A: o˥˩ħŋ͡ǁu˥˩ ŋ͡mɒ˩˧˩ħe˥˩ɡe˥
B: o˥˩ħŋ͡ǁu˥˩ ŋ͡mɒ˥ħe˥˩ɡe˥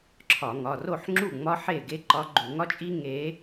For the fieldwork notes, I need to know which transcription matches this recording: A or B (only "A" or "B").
B